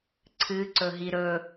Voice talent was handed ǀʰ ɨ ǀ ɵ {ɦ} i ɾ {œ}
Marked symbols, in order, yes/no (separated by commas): yes, no